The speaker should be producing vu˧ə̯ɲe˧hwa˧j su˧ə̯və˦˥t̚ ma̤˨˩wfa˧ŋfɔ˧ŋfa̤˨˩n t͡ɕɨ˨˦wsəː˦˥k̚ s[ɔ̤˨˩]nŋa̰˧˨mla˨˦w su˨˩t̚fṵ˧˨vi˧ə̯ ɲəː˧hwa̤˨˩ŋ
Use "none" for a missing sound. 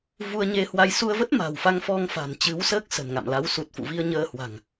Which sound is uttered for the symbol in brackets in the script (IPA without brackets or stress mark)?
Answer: ə̤˨˩